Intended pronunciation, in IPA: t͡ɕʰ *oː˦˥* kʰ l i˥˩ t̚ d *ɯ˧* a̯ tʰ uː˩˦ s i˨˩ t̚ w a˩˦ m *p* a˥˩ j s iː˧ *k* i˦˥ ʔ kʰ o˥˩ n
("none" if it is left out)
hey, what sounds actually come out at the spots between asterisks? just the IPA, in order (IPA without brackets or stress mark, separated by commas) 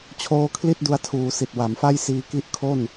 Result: oː˦˥, u˧, f, k